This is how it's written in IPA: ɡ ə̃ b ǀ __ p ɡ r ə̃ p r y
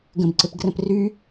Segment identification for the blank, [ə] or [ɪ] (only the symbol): ɪ